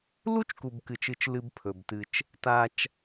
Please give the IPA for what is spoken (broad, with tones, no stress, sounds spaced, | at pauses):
l u˦ t͡ʃ k u˨ b k ɨ˨ t͡ʃ ɨ˨ t͡ʃ l ɨ˦ b pʰ ɵ˨ b t ɨ˦ t͡ʃ | t a˦ t͡ʃ